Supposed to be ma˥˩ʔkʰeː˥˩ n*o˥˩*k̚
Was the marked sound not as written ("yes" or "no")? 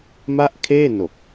yes